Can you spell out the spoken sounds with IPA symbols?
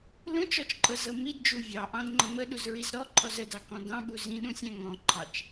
l ũ t͡ʃ ɔ t͡ʃ ǃʼ ɤ z ɤ m i d d͡ʒ u vʲ ɑ ʔ ɑ̃ d ŋ͡ǃ ə m ə ɗ u z ɹ i z ɾ ɔ ǃʰ ɔ z ə d ɑ k ɔ̃ d ɑ̃ ɓ u z ĩ ɗ ũ sʲ æ̃ ŋ ɔ̃ ǃʰ ɑ t͡ʃ

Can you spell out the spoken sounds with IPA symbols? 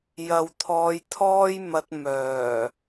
j ɐ˨ w t̪ʰ ɔː˨˧ j t̪ʰ ɔː˥ j m ɐ˧ t̚ m œː˨˩

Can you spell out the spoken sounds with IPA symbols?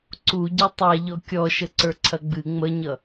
ǀ u ɟ ɛ tˤ a ʎ ɔ kʲ ɔ ʃ ə ǀ ə˞ ǀʰ ɐ ɡ͡b ɨ ŋ͡m ə ɲ ʌ

